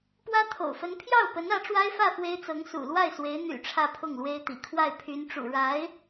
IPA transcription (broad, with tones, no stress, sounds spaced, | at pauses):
p w ä˥ t̪ʰ o̰˨˩ ʊ̯ f ə˧˥ n pʰ j ɑ˥˩ ʊ̯ p ə˧˥ n ä˧˥ ʈ͡ʂ w a˥ ɪ̯ f ä˥˩ f w e˥ ɪ̯ t͡s ɤ˧˥ ŋ s ṵ˨˩ l w a˥˩ ɪ̯ s w e˧˥ ɪ̯ n̪ y̰˨˩ ʈ͡ʂʰ ä˥˧ pʰ ʊ˥˩ ŋ l w e˥ ɪ̯ t̪ ḭ˨˩ kʰ w a˥˩ ɪ̯ pʰ y˧˥ n ʈ͡ʂ ṵ˨˩ ɻ a˧˥ ɪ̯